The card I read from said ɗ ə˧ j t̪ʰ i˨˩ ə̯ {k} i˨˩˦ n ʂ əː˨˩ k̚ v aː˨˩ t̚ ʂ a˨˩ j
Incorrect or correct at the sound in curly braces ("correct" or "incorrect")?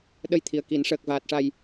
correct